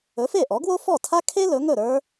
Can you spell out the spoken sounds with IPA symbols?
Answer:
ɵ˩˥ f e˥˩ ʔ ɔ˩˥ ɡ w o˥ f ɔ˥˩ tʰ a˥ kʰ e˥ l ɵ˩˥ ŋ ɵ˥˩ ɾ ə˞˥

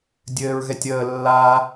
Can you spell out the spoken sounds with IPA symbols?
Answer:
dʲ ɘː ɹ ɣ ɛ tʲ əː lː a

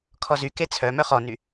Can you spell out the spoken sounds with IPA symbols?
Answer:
kʰ ɔ z y k e t͡sʰ œ m œ χ ɔ n y

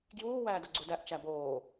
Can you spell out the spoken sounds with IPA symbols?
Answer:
ɡ j uː w æː d o ɡ͡ǀ u d æ ʔ t͡ʃ æ b oː

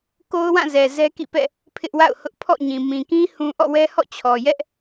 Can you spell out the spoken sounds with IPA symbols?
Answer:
k o˦ ʊ̯ w ã˦˨ z ɛ˨ z ɛ˦ k ḭ˦˨ p ɛ̰˦˨ | pʰ ɪ˦ ʔ w a̰˦˨ ʊ̯ h ʊ˦ ʔ pʰ ɔ̰˦˨ ɲ ĩ˨ m ĩ˨ k ĩ˦ h ũ˦ ʔ ɔ̰˦˨ w ɛ˦ h ɔ̰˦˨ t͡ɕʰ ɔ˨ j ɛ˦ ʔ

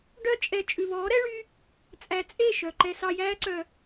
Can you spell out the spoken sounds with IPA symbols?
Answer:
ɖ œ˧ t͡ʃʼ ɛ˨ t͡ʃʼ ʉ˨ β ɔː˨˦ ɾ ɛ˦ ɭ y˦ | t͡sʼ æ˨ t͡sʼ e˦˨ ʃ œ˨ ǃ ɛ˧ s ɑ˧ j æː˦ ǀ œ˧

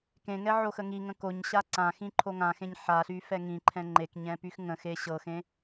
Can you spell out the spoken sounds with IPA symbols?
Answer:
k ẽ ŋ ɛ ʕ o x ə ŋ i ŋ ə̃ k o ɲ ɕ a ǀ ã x ĩ ǃʰ o ŋ ã x ẽ ɲ ħ a ɬ y f ɛ ŋ ĩ ǃʰ ɛ̃ ŋ͡ǃ e k ɲ ɛ̃ p y x ŋ ə̃ x e ɕ ɤ x ẽ

